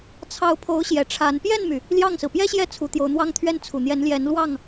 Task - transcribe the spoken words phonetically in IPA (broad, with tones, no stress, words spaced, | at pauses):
t͡sʰɑ˧˥ʊ̯pʰo˧˥ʊ̯ɕjɛ˨˩ ʈ͡ʂʰa˧˥n pjɛ˥˩nmy˩ | ljɑ˥˩ŋsɹ̩˩ pjɛ˥ɕjɛ˥˩ t͡sʰu˧˥t̪jo˧˥ʊ̯n̪wɑ˥ŋ t̪ʰɥɛ˥˩n t͡sʰu˨˩n̪jɛ˧˥n ljɛ˧˥nlwɑ˥˩ŋ